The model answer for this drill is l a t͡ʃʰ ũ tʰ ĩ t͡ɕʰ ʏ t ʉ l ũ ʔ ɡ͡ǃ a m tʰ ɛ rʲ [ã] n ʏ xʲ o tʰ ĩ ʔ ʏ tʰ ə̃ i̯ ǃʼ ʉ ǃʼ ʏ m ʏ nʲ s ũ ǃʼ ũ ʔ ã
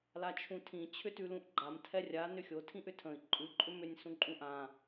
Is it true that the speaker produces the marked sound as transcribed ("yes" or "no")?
no